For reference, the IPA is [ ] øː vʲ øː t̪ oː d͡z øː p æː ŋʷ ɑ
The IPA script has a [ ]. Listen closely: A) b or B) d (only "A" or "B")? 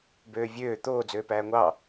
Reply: A